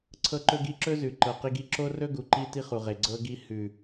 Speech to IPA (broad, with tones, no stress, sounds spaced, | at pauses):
ǀʰ ɤ˦ ǃ ɵ˦ ɡ i˦ ǁ ɵ˦ z ʉ˨ ǃ ɤ˨ q i˦ ɡ i˦ ǁ o˦ r ɵ˦ ɡ u˨ ǃ i˦ t i˦ χ u˨ ʁ e˨ ɡ͡ǀ ɤ˦ ɡ i˦ h ʉ˨